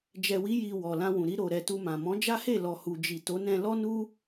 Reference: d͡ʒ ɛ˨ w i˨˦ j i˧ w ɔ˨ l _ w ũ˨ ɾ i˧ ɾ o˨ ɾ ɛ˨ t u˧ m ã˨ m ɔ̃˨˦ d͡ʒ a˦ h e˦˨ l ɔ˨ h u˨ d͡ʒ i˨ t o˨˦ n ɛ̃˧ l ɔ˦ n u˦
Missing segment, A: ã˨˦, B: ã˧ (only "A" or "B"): B